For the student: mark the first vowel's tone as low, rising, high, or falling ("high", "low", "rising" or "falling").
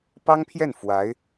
high